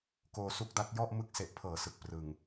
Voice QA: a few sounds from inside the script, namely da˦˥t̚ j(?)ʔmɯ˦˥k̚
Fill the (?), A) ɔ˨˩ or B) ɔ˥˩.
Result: B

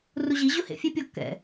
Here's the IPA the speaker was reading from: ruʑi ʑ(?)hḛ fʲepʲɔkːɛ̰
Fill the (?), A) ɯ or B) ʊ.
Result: B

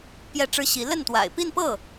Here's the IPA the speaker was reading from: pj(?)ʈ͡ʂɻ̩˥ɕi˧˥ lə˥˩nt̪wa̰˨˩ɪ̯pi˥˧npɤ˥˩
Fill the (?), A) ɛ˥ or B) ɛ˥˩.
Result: B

